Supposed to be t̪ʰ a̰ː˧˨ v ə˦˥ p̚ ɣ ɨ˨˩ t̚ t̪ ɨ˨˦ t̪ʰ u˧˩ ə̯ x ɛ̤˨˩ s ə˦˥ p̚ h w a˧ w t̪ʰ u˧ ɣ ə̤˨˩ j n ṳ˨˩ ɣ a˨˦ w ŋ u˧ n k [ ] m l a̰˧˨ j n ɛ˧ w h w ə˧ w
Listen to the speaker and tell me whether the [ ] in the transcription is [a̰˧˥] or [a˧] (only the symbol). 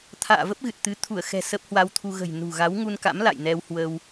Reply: a̰˧˥